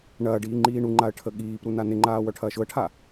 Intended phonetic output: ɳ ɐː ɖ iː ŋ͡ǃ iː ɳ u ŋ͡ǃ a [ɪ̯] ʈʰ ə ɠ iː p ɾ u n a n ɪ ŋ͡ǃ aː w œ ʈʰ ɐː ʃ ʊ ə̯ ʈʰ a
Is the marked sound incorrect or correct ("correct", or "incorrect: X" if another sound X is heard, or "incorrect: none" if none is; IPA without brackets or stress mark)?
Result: incorrect: ə̯